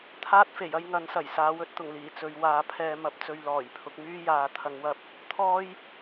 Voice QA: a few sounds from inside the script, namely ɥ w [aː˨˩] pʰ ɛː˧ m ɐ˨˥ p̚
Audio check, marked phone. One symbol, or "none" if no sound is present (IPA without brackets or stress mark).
aː˨˧